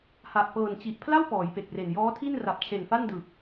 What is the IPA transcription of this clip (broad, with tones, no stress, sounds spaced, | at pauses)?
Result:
h a˨˩ ʔ p ɤː˨˩ n t͡ɕ i˨˩ ʔ pʰ l a˥˩ w p ɔː˩˦ j p e˨˩ k̚ r e˨˩ n j ɔː˦˥ tʰ i˥˩ n r a˨˩ p̚ t͡ɕʰ e˨˩ n f a˥˩ n d ɯ˨˩ k̚